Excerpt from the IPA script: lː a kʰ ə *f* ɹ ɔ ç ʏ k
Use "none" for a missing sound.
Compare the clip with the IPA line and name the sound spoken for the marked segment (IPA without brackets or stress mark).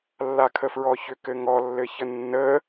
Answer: f